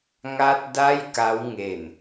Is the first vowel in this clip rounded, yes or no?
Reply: no